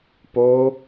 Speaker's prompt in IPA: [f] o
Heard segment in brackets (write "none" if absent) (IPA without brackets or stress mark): p